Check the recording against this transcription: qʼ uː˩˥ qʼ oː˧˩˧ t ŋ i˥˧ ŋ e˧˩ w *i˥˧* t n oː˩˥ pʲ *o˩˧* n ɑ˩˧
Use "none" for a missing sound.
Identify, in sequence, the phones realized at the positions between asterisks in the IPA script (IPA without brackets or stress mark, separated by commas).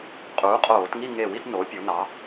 i˥˧, o˩˧